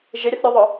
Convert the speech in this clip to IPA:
ʒ ɪ ɾʲ ə θ ɾʲ u ðˤ œ

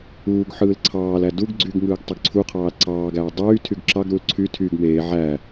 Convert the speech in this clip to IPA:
uː ɡ ħ ɯː l ǀʰ ɑː l æ d u ɡ ɡ͡ǀ y ɡ ŋ ɯː ɡ tˤ ø ɡ ǀʰ u qʰ ɑː l ǀ ɑː ɡ æː dˤ yː tʰ y ɡ ǁ ɑ ɡ ɾ u l ǀʰ y tʰ y ɡ m eː ʕ æ

